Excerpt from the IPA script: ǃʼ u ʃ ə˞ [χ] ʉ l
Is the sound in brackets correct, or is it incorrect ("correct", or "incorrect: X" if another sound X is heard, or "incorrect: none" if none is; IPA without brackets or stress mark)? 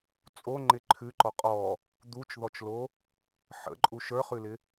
correct